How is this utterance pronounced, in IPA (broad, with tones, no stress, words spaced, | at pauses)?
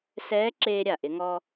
sɛː˧˥ ǁeː˧ɾʲa˩ʔɪ˩˧ ŋɔː˧